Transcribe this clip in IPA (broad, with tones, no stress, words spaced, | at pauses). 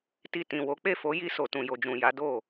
ti˨ tĩ˨wo˨˦k͡pe˦˨ fo˨˦ji˧so˨tũ˨ jo˨d͡ʒũ˨ ja˨˦do˦˨